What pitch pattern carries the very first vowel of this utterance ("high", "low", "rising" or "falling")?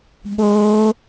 high